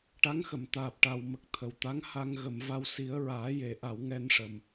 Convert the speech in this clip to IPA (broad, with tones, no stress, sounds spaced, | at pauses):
ʈ a˧˥ ŋ x ə˨˩˨ m t̪ aː˨˩ p̚ ʈ a˨˩ w m ə˨˩ k̚ t̪ʰ ə˨˩ w t̪ a˧˥ ŋ h a˧ ŋ ɣ ə˨˩˨ m v a˧ w s i˨˩˦ ə̯ ɹ aː˨˩˦ j e˨˩˨ ʔ a˨˩˨ w ŋ ɛ˧ n ʂ ə˨˩ m